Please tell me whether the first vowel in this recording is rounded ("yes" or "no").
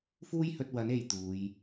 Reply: yes